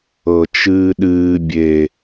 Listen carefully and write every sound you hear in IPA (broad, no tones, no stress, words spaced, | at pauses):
ɤt͡ʃɨːɗɨː bʲe